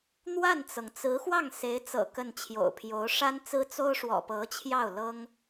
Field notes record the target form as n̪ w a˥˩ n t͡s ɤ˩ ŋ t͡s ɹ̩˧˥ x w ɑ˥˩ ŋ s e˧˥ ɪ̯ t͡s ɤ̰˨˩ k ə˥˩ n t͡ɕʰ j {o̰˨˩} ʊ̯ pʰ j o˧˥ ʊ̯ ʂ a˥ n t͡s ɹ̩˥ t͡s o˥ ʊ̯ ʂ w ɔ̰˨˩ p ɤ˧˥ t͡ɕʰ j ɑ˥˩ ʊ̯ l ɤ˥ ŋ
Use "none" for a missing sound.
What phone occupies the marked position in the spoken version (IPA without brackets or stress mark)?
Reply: o̰˨˩